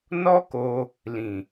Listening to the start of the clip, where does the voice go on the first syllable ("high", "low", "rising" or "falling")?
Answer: high